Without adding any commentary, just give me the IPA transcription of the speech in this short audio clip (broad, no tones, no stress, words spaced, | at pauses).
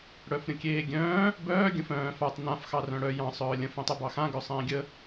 ɽœfɾʲə̃kʲeːɡʲœ̃ː | bœː ɡʲə̃fœ̃ː fatˤ nãf xɑrœ̃ɽœ jɑ̃ sˤœːlʲə̃ fẽtˤœbɑxã ɡœsˤẽːɡʲə